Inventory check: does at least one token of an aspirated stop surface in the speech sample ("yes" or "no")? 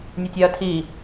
yes